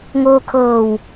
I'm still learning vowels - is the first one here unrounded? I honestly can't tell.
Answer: no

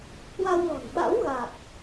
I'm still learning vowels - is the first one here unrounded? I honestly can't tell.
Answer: yes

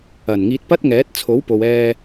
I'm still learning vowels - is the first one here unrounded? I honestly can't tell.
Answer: yes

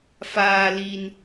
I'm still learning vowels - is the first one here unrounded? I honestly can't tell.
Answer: yes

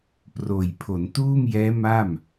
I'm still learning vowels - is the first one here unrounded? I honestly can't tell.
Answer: no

